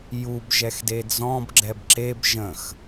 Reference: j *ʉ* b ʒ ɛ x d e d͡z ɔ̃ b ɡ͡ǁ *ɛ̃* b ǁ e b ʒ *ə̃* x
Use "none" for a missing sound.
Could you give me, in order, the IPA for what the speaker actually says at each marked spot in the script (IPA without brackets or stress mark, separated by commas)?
u, ɛ, ə̃